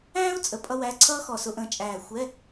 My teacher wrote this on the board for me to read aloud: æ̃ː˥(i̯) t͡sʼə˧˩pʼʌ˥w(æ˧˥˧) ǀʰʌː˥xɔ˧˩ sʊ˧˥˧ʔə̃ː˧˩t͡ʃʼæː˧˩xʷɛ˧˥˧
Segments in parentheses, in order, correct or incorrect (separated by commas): incorrect, correct